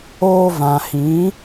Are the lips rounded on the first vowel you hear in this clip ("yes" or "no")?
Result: yes